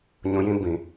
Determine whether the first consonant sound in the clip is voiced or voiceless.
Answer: voiced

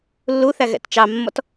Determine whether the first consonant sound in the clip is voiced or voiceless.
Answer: voiced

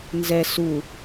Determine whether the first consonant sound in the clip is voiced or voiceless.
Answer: voiced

